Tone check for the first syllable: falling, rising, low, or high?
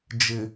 low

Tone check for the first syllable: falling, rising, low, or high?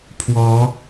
rising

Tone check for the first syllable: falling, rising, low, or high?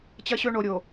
high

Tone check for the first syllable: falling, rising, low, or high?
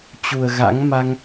low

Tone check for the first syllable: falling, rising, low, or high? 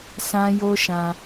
high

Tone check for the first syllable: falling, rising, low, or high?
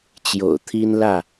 low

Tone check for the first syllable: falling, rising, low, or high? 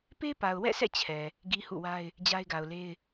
high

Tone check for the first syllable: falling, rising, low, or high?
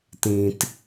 low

